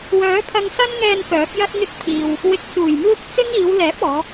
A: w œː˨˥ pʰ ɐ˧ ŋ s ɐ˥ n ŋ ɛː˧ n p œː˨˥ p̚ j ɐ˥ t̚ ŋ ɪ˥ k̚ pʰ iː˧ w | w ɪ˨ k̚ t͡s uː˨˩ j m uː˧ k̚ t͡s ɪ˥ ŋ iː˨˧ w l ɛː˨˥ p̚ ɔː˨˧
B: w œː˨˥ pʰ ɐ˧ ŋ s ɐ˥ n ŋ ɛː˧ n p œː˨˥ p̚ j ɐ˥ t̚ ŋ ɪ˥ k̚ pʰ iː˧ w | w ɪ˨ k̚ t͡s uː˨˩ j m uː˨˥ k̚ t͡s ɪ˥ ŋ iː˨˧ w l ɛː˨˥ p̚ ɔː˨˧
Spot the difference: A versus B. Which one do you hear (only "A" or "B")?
A